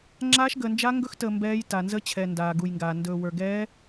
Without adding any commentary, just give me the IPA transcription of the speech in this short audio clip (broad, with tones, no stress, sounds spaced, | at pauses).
ŋ͡ǁ aː˦˥ ʃ ɡ əː˧ n d͡ʒ a˦˥ ŋ ɡ ɵ˦˥ x t əː˧ m b ɛː˦˥ j t a˧ n z ə˦˥ t͡ɕʰ ɛ˧ n d aː˧ ɡ u˧ j ŋ ɡ aː˧ n d ɵː˧ w ə˞˧ ɡ ɛː˦˥